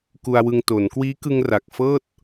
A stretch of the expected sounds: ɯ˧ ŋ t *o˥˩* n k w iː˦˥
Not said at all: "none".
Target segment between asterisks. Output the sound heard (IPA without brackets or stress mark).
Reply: o˩˦